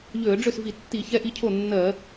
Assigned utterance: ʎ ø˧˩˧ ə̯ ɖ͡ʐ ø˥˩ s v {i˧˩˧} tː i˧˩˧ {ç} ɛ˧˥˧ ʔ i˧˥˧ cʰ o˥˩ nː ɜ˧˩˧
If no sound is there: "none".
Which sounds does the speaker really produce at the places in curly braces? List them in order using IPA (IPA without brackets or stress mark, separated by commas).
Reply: i˧˩˧, ç